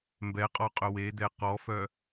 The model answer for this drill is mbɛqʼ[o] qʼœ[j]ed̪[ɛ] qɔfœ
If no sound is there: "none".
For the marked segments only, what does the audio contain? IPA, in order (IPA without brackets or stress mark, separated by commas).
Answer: ɔ, w, ɛ